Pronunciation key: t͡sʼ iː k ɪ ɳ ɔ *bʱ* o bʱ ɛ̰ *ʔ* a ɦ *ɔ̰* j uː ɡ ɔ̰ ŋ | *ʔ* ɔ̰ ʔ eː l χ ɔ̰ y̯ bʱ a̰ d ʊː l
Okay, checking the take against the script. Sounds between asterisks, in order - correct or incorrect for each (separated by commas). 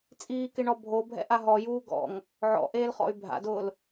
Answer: correct, correct, incorrect, incorrect